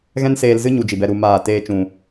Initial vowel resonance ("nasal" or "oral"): nasal